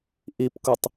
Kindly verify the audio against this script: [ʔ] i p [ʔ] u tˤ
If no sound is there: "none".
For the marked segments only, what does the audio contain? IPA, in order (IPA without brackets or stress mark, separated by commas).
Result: ʔ, k